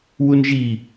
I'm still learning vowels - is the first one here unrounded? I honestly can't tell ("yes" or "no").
no